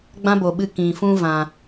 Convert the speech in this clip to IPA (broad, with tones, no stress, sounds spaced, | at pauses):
ɡ͡b ã˦ b o˨ ɓ ɨ˧ k ĩ˨ f ũ˧ v ã˨